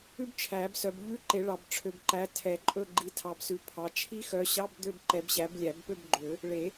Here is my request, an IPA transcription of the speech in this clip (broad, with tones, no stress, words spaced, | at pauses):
ʉ˥bt͡ʃʰæ˨˩˦bsœ˨b ʎʉ˧˥˧ǃe˨˩˦ ɭɑ˨b ʈ͡ʂʰø˨bǃæ˨˦ tʰɛ˨˩˦ǃʼɵ˥˧ɡ͡ǃi˨˦ tʰɑ˨bsʉ˨ pʰɑ˨t͡ʃʰi˥ xœ˨˦ɕɑ˧˥˧b d̪ø˥˧b ǃɛ˨˦bɕæ˨˦blʲæ˨˩˦bpø˥˧b ɡ͡ǃø˨˩˦ | ɭe˨˩˦